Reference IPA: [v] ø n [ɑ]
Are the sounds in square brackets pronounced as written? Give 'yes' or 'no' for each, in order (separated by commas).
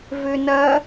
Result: yes, no